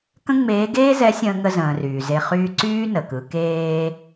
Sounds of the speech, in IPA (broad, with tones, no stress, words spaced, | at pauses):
kə̃˥ŋ͡meː˧˥ ɡeː˥zɛ˧˥ sʲə̃ː˧ŋə˧zə̃ː˩ ryː˩ze˧ χyː˧ǀyː˥ nə˩kɯ˩˧ keː˧